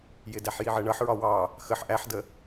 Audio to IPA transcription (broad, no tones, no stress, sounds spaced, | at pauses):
j ɪ d æ ħ j i ʕ ɜ ɳ ʌ ħ ɹ ɒ w ɑ | x ə ħ ʔ æ ħ d ə